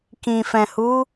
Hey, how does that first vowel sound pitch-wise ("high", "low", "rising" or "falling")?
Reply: low